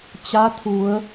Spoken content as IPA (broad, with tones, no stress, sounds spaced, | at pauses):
t͡ɕ a˧˥ t̪ʰ u˩˧ ə̯